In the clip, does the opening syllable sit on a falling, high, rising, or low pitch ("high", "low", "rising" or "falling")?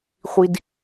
high